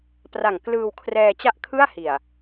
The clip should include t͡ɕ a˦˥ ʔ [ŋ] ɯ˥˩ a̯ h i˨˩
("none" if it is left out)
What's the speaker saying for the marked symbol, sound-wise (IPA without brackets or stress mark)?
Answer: kʰ